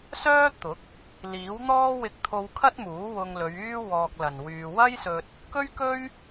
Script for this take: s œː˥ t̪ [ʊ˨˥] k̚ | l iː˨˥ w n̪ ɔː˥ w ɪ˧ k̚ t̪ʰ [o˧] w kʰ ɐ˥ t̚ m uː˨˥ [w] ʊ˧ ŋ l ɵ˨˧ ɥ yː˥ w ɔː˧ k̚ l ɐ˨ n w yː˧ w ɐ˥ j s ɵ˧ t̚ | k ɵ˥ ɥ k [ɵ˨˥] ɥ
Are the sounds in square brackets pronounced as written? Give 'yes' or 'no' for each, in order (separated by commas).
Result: yes, yes, yes, no